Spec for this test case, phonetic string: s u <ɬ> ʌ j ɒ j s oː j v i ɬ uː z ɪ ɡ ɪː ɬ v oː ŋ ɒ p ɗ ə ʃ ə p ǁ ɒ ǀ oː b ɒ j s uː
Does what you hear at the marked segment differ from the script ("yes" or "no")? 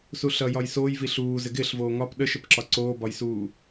no